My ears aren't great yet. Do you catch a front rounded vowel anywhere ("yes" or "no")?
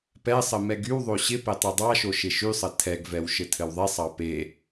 yes